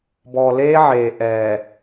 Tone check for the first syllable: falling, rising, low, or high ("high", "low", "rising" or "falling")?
low